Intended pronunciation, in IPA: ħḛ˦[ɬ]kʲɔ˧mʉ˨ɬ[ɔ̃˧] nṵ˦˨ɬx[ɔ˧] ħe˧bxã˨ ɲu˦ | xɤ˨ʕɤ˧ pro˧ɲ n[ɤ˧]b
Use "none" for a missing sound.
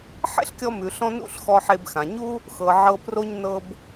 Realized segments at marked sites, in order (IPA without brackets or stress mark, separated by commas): ɬ, ɔ̃˧, ɔ˧, ɤ˧